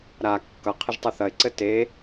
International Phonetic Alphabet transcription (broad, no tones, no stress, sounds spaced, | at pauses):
ɾ a kː ʌ qʰ ɘ ʒ tˤ ɘ θ ɐ ɪ̯ ǀ ɘ t e